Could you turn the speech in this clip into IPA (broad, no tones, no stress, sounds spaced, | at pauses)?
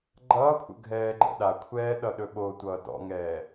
ɡ͡ǃ ʌː kʷʰ ə̰ ɡʱ ɛː ɡ͡ǃ ə̰ ɗ a kʷʰ ɛː ɗ ʌ ɗ ɵ ɓ o tʷ ʌː d ɔ̰ ŋ ɛː